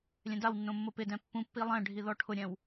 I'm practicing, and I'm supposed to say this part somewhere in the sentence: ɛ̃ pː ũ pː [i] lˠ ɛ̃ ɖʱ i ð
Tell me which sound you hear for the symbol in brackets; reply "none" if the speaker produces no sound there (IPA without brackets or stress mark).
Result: i